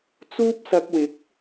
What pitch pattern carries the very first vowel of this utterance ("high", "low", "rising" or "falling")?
high